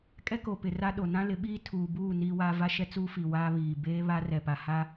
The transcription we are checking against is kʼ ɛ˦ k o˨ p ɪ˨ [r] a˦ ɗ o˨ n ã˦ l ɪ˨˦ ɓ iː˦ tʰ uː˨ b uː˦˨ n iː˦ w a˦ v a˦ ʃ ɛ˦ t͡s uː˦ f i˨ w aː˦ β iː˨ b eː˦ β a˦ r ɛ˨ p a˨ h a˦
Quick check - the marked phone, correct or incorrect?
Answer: correct